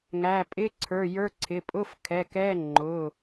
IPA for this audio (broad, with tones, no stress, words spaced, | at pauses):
ŋæ˩˧˩ pʼɪ˧˥˧ǀʰə˞˩˧˩jə˞˧˥˧ǀʰɪ˩˧˩ pʼʊ˧˥˧fkʰɛ˩˧˩kɛ˧˥˧ ŋ͡ǃʊ˩˧˩